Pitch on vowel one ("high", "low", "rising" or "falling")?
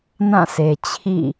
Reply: falling